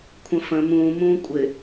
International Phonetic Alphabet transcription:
kʷʰ ə̃ f ə̃ m ũː m ũː kʷʼ ɪ

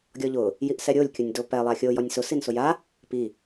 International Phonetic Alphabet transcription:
ɡʲ ɔ ʎ ʊ | j i ʔ s ɛ ɾʲ o lʲ kʲ ʊ nʲ d o p ɛ lˠ a xʲ o j ɔ nʲ s ʊ s i n s ʊ j a | p i

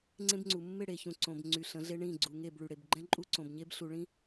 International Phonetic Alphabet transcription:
ŋ͡ǀ ẽ˦ b ŋ͡ǀ u˨ mː ɪ˦˨ ɽ e˨ ç ũ˨ ǀ õ˨ b ŋ͡ǀ y˨ ɬ ə̃˨˦ ɮ e˦ ɳ ĩ˦˨ ɡ͡ǀ u˨ ŋ e˦˨ b ɭ y˨ ɽ e˨ b ɡ͡ǃ ɛ̃˦ ǃʼ u˦ ǀ õ˨ b ɲ e˦ b ɬ u˨ ɭ ĩ˦

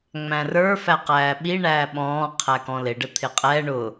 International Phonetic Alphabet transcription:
ŋ͡m æ̃ r ə˞ f æ q æː ɓ i ɳ æː ɓ ɔ̃ː qʰ æ k ɔ̃ l ɪ ɖ ə t̪ʰ ɪ qʼ ɛ ɳ ʊ

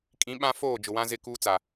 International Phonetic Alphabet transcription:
kʼ ĩ˨˦ ɓ ã˦ f oː˦˨ d͡ʒ ʊ˨ w ã˦ z ɪ˦˨ k uː˦ t͡s a˨

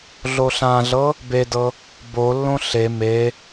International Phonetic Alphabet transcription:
ɮ o ɬ ã ɮ ɤ | b e d ɤ | b o lː õ ɬ e m e

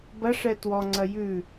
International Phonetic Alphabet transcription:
b ɐ ʂ ɛ t w ɔ ŋ͡ǀ ɐ j ʉ

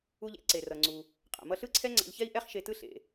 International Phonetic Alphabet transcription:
u˧ ʎ ḛ˥ ǀ e˩ r ʌ˩ ŋ͡ǀ u˩ | qʼ a̰˩ m ʌ˧ ɬ ɯ˥ ǀʰ ɛ˥ ŋ͡ǀ a̰˧ ʎ ç ɛ˥ i̯ ʔ ɛ˥ χ ʃ e˧ t ɯ˥ ɬ ḛ˩

